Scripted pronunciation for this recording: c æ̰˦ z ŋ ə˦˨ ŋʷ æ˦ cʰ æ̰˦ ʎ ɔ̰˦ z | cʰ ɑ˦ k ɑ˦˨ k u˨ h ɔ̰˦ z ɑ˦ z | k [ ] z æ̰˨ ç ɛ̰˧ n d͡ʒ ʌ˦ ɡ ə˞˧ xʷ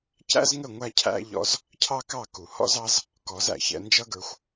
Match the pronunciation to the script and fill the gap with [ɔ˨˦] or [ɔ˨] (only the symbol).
ɔ˨˦